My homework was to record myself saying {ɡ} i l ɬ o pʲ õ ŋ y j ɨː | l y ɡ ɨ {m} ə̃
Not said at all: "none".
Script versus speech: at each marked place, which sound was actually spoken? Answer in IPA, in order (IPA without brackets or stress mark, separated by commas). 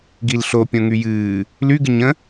ɡ, ɲ